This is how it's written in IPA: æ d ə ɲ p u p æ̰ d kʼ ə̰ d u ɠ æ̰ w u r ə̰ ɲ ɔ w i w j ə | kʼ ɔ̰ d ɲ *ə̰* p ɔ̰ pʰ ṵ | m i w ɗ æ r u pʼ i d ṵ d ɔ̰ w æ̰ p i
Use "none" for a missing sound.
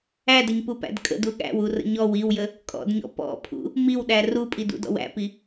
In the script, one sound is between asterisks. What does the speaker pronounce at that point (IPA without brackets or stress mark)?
ɔ̰